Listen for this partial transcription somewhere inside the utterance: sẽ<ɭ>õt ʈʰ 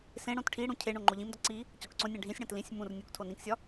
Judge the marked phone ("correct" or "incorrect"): incorrect